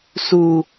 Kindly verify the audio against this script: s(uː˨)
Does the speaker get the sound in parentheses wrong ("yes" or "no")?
yes